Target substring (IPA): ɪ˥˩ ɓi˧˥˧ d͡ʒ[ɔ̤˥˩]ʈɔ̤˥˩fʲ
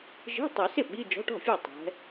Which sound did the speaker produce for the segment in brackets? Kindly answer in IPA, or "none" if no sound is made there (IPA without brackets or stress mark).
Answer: ɔ̤˧˥˧